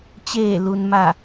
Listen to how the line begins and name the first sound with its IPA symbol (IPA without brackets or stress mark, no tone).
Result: t͡ɕ